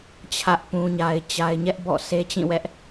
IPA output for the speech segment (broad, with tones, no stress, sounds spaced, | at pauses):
t͡ɕʰ ä˦ ʔ p ũ˦ ɲ a˦ ɪ̯ t͡ɕ a˦ ɪ̯ ɲ ɛ˦ ʔ b ɔ̰˦˨ sʰ e˦ t͡ɕ ĩ˦˨ w ɛ˦ ʔ